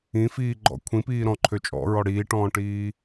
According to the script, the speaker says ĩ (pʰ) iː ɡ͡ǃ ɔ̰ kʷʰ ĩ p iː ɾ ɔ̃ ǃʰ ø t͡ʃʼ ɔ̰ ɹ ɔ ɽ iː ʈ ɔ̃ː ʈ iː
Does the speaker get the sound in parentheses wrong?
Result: yes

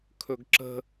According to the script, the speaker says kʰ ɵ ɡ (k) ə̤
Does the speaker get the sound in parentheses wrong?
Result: yes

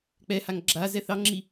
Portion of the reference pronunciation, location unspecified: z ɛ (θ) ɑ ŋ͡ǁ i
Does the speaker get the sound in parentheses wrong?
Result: no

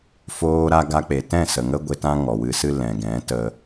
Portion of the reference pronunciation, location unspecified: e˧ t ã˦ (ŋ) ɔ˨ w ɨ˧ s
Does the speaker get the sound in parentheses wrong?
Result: no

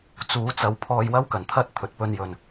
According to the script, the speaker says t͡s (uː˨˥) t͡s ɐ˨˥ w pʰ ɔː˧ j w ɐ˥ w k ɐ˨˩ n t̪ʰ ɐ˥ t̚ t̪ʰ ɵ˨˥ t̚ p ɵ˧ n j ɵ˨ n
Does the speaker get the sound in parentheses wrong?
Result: no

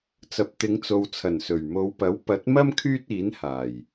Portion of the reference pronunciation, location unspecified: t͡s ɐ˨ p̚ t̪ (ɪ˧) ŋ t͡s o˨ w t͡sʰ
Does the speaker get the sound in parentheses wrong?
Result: yes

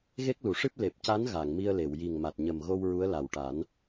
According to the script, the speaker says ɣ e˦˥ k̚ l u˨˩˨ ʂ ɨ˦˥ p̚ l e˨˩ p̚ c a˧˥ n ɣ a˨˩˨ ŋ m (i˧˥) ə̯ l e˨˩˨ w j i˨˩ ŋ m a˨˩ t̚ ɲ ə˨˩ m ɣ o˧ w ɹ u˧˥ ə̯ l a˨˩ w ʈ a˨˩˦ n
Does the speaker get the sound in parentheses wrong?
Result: yes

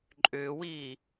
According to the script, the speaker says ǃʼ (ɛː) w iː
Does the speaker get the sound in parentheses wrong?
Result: yes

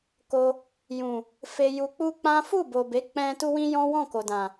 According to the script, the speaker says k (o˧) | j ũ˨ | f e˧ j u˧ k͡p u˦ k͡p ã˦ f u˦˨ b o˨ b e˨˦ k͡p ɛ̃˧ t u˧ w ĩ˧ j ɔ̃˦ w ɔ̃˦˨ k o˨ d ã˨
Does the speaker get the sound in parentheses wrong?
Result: no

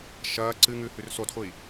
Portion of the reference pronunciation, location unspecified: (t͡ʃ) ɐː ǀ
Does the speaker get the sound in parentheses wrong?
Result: yes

